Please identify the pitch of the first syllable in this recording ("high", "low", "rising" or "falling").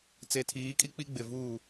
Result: low